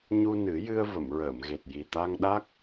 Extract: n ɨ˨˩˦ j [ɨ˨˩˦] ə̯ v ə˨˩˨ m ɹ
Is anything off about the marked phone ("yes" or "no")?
yes